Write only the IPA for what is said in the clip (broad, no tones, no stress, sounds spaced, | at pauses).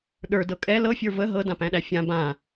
ɗ ə˞ d ɤ kʼ ɛ l ɤ fʲ ə˞ v ə ɦ ɤ d ã p æ̃ ɗ æ fʲ ã b ã